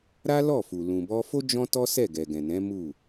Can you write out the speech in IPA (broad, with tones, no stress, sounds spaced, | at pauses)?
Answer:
ɾ a˦ l ɔ˦˨ f u˨ l ũ˨ b ɔ˧ f o˦ d͡ʒ ɔ̃˦ t ɔ˦ s ɛ˦˨ ɡ ɛ˨ ɡ ɛ̃˨ n ɛ̃˨˦ m u˦˨